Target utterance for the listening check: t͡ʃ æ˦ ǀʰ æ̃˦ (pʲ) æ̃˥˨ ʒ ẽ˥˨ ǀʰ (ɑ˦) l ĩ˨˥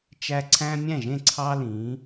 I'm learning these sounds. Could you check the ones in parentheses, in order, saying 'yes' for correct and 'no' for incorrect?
no, yes

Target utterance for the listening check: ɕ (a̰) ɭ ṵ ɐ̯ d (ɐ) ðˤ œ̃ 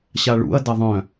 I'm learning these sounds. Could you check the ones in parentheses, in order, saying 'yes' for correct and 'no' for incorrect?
no, yes

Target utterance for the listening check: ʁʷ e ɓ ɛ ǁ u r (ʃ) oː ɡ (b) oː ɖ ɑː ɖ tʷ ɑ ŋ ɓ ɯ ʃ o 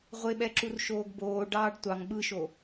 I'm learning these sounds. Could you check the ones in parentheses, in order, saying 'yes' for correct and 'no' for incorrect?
yes, yes

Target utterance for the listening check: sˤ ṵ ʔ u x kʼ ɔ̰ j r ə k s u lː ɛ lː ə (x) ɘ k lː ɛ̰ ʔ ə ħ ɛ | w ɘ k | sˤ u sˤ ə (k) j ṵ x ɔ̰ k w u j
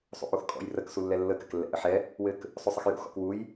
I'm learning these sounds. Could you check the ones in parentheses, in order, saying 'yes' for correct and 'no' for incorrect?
no, no

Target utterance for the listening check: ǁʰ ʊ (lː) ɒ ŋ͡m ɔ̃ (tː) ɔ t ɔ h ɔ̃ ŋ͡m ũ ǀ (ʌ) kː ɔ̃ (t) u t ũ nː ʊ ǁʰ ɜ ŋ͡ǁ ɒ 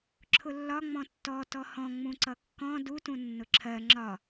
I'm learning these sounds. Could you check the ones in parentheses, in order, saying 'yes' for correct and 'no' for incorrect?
yes, yes, yes, no

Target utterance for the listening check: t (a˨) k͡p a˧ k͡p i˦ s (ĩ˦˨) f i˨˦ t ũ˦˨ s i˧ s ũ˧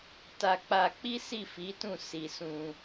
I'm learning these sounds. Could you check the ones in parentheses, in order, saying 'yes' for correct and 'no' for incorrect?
no, no

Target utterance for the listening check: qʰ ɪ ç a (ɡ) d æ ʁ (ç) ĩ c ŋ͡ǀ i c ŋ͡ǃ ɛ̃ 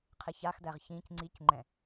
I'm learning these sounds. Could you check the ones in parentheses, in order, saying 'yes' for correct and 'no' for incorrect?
no, yes

